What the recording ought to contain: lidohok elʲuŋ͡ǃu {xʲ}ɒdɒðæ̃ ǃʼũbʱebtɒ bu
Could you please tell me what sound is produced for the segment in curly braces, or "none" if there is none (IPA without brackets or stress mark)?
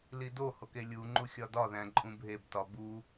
xʲ